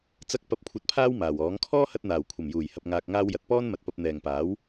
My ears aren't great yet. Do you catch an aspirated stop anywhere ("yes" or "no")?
yes